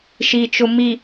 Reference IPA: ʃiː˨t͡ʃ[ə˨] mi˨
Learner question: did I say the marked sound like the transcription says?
no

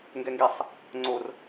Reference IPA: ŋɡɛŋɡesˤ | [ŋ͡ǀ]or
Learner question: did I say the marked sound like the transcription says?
yes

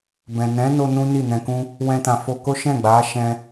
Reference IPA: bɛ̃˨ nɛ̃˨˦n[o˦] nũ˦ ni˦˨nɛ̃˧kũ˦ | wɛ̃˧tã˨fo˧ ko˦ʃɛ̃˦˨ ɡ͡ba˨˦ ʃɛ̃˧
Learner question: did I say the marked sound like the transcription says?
no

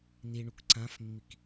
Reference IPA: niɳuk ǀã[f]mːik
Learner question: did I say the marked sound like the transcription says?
yes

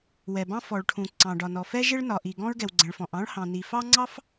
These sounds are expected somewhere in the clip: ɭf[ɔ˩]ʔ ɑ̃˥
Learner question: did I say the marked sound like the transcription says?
no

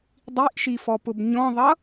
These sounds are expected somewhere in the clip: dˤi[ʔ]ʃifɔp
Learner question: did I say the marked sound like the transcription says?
yes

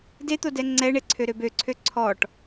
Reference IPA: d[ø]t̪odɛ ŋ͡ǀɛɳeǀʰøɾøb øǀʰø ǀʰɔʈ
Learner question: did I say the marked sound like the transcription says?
no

